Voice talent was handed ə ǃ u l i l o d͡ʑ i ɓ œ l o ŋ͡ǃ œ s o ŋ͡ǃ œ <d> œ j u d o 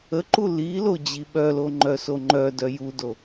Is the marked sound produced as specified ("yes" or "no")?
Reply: yes